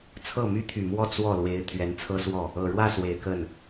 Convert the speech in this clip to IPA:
t͡sʰ ɤ˥˩ m y˥ t̪ʰ y˨˩ m w ɔ˥˧ t͡s w ɔ˥˩ l w e˧˥ ɪ̯ t̪ʰ ɥ ɛ˧˥ n t͡sʰ ɤ˥ s w ɔ˥˩ | ɤ˨˩ ɻ w ä˥˩ s w e˨˩ ɪ̯ k ə˥˩ n

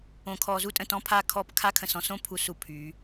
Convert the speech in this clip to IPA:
õ˨ kʰ ɔ˨ z u˦ tʼ ə̃˨ t ɔ̃˦ pʰ a˦ kʰ ɔ˦˨ p kʰ a˦ kʰ ə̃˨ s ɔ̃˦ s õ˦ pʰ u˨ s u˨ pʰ y˨˦

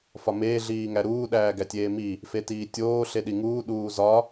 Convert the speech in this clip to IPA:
f ɒ m eː ɮ iː ŋ æ ɾ uː ɗ æː ɡ æ tʲ eː m i | f e t iː tʲ oː ɬ e ɗ i ŋ uː ɗ uː z ɒ

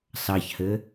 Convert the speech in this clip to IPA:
s ɑ ç h ɘ

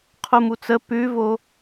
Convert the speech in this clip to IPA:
qʰ u m u t͡s ə p ʉ v o

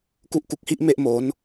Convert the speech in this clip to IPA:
k u˦˥ ʔ k u˨˩ k̚ h i˥˩ ʔ m e˥˩ ʔ m o˩˦ n

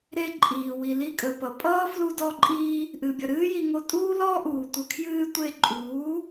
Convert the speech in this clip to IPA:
ɾ e˦ ǃʼ iː˨ w i˨ l i˧ kʼ ə˨ p ʌ˨ pʼ ʌː˦ f l u˧ d ɔ˦ ǃʼ iː˦ | ʔ ɨ˨ bʲ ʌ˨ ɾ ɨː˦ j i˧ ŋ o˧ tʼ uː˦ l ɔː˦ ʔ uː˨ tʷ ə˧ kʰ j ɨː˧ tʷ e˧ ǃʼ uː˨˦

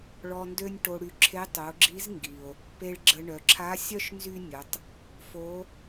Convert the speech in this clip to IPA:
ɭ ɔ˧ n d ø˥ nʲ ʈ o˧ ɽ y˧ ǁʰ e˧˥ tˤ o˩˧ ɡ͡ǁ i˧˥ z ŋ ɡ i˩ o̯ | p e˧ ɭ ɡ͡ǁ ə˧ ɳ œ˩˧ ǁʰ a˧˥ sʲ œ˥ ʃ n z y˥ nʲ ə˩˧ tˤ | f o˧˥

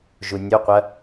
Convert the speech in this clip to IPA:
ʒ u nʲ o qʷ ɐ

